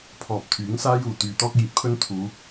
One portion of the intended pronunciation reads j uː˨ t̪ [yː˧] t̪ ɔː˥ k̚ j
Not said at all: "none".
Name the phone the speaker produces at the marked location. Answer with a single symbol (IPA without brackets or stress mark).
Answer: yː˧